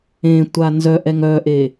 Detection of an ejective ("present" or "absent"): absent